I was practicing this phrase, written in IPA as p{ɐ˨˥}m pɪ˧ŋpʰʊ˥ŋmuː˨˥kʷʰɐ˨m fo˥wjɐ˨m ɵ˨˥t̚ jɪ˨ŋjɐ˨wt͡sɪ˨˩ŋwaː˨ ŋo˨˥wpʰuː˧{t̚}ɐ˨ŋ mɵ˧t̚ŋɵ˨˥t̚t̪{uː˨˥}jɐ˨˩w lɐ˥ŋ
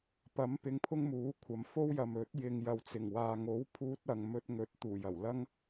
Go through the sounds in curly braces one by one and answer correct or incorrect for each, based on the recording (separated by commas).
correct, correct, incorrect